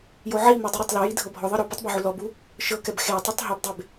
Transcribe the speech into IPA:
j o ʕ i m e dˤ ɯ ɾ a tˤ l ɔ j i dʱ ɤ bʱ ɔ ðˤ ɤ ɾ ɔ p ɯ tˤ b ɔ ʕ u l ɔ b u | ʃ ɤ k ɛ b x e tˤ u tˤ ɦ i b dˤ e b

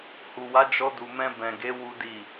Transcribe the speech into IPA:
h u˨ w a˨˦ d͡ʒ ɔ˧ d u˨ m ɛ̃˧ b ɛ̃˨ ɡ e˨˦ w u˦ d i˦˨

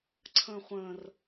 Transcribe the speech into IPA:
ǀʰ ə̃ː χʷ ə̃ː r

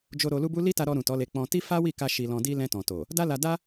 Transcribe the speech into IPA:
d͡ʒ o˧ ɾ o˧ l u˦ b u˦ l i˦ t a˧ ɾ ɔ˧ ɾ ũ˨ t ɔ˨˦ l e˧ k͡p ɔ̃˧ t i˦ f a˦ w i˦˨ k a˧ ʃ i˧ l ɔ̃˧ d i˦ l ɛ̃˧ t ɔ̃˨ t o˨ | d a˦ l a˧ d a˦

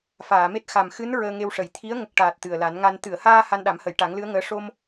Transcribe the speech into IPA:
f aː˨˩˨ m e˦˥ t̚ x a˨˩ m x ɨ˧˥ n ɹ əː˧ ŋ e˧ w ʂ ə˨˩˨ j t̪ʰ i˧˥ ə̯ ŋ ə˨˩ k̚ ʈ aː˨˩ t̚ t̪ ɨ˨˩ ə̯ l a˨˩˦ n ŋ a˧ n t̪ ɨ˨˩˨ ə̯ h aː˧ h a˧ n ɗ a˨˩˦ m h ə˨˩˨ j ʈ a˨˩˦ ŋ l ɨ˧˥ ə̯ ŋ əː˧˥ ʂ o˧ m

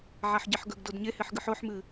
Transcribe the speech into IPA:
ʕ a ħ ɟ e ħ ɡ ɵ ɡ d o d ɲ e h e ħ ɡ ɨ ħ o ħ m ɨ

